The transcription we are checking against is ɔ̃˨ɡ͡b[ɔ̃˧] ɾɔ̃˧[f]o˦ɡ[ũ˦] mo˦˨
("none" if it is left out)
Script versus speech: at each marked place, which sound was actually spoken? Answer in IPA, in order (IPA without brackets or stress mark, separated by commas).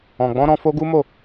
ɔ̃˧, f, u˦